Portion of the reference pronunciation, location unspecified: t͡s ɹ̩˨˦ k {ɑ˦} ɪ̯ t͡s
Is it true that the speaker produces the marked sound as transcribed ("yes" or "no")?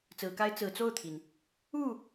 no